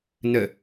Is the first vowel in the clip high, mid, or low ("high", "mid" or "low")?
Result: mid